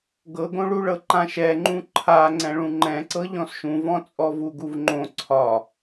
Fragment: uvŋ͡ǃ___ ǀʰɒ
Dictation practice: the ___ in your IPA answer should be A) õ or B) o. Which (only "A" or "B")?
A